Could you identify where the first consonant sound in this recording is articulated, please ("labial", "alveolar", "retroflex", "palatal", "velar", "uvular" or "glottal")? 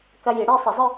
velar